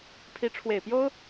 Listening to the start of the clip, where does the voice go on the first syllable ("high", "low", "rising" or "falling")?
rising